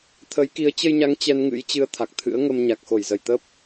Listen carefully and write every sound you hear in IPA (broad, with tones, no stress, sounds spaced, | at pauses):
t̪ʰ ə˨˦ j k i˨˦ ə̯ t͡ɕ ə˧ j ɲ a˨˦ ŋ t͡ɕ ɛ˧ n ŋ ɨ̰˧˥ j t͡ɕ ɨ˧ ə̯ t̪ʰ a˨˩ k̚ t̪ʰ ɨ̰˧˥ ə̯ ŋ ə˧ m ɲ a˨˩ k̚ x o˧˩ j z ə˧˩ j t̪ ə˦˥ p̚